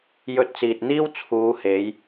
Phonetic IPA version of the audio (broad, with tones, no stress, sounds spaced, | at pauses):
j ɵ˧ t̚ t͡s iː˨ t̚ n̪ iː˥ w t͡sʰ uː˨˧ h e˨˧ j